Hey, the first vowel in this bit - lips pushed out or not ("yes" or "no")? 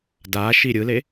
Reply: no